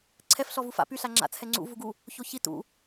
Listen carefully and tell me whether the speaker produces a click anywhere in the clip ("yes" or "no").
yes